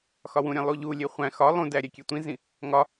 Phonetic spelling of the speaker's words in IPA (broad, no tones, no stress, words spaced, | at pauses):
xɒwũɾʲæ̃ lˠuʎulʲe χʷæ̃ xɒ lˠũdæ ɾʲækʲetʷĩzĩ | ŋɒ